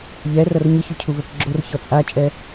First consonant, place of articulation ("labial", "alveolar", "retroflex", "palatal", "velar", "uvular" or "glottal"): palatal